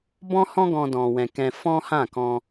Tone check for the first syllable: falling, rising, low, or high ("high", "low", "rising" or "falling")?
high